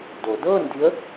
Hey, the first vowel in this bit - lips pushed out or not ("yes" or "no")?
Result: yes